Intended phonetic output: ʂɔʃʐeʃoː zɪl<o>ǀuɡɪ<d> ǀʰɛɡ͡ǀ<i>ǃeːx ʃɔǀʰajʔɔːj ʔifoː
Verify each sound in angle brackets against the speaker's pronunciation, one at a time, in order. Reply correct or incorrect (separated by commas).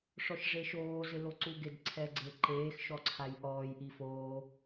correct, correct, incorrect